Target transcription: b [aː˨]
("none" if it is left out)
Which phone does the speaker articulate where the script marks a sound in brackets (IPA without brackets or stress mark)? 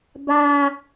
aː˦